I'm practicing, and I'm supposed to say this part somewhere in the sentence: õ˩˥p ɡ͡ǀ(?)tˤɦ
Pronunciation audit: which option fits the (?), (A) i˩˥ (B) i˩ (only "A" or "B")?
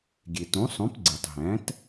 B